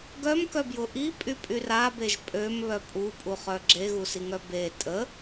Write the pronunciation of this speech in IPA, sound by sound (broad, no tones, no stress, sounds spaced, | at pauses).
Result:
ɡ œ m k œ b j ʊ ʔ i pʼ y pʼ y r a b e ʒ pʼ ø m β œ pʼ u pʼ u χ œ ɡ͡ǁ e ɣ u s i ŋ œ b e tʼ ə